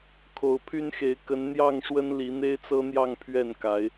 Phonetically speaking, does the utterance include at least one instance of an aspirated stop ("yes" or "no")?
yes